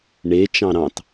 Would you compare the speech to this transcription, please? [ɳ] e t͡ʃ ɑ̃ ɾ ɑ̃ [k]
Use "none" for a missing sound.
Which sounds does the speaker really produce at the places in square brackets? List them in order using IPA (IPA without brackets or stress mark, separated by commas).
ɳ, t